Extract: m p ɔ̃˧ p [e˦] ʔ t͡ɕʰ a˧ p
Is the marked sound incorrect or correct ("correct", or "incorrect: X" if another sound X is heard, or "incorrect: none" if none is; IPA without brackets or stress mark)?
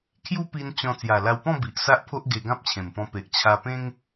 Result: incorrect: e˨